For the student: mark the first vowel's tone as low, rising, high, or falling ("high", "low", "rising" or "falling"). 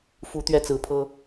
rising